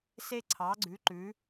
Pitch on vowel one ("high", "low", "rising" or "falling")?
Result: high